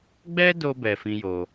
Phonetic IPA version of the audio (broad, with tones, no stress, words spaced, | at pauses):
ɡ͡bɛ˦do˧bɛ˨ fĩ˦jo˧